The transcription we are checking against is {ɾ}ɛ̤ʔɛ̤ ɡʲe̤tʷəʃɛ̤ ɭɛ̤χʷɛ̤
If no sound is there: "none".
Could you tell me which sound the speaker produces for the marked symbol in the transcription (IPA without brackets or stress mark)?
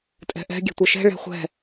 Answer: tʼ